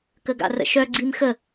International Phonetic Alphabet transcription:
kəɡa̰rə̰ʃœ ɡ͡ǀimxə

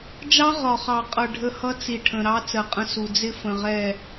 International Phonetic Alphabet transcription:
d͡ʒɑ˦ʁɒ˨χɑ˨qʼʌ˨ ɖʱə˦ hʌ˦t͡si˨ ʈʰə̃˨ɾɑ˦ t͡sɜ˨qʼə̃˦su˨ d͡zɪ˦fə̃˨ʁɛ˦˨

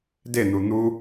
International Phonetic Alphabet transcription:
den̪u n̪u

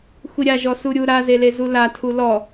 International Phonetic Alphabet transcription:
xʷiɾʲa ʒɔsuɾʲu ɾa zelezula tʰulɔ

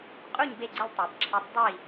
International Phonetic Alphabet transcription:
qʼu˥˨ɲ be˥˨ɡ͡ǀɪ˥˨lʲtˤe˨˩˦b ǁʰɛ˨˦tˤ dˤi˥˨

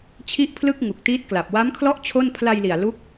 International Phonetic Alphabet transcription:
t͡ɕʰi˥˩ʔpʰlɯ˥˩k̚ ŋu˨˩k̚tiː˦˥t̚kla˨˩p̚ wa˦˥mkʰlɔ˥˩ʔ t͡ɕʰo˥˩n pʰla˧jli˨˩a̯ lu˦˥k̚

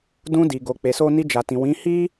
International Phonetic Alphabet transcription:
dũ˧di˨ ɡo˧k͡pe˧so˦ ni˧d͡ʒa˨tĩ˨ wĩ˨˦ hi˦

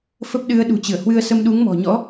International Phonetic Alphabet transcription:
fə˦˥p̚ɗɨ˨˦ə̯ ɗṳ˨˩t͡ɕɨ˧˩ə̯hwɨ˧ə̯sə˧m ɗu˨˦ŋmɔ̤˨˩ ɲɔ̰˧˥

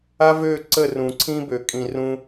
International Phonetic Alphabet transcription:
a˦vø˦˨ǀə˦˨ rũ˨ǀʰĩ˦bø˨ kʼĩ˨rũ˦

